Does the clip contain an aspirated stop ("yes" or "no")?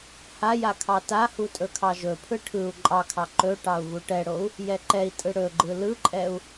yes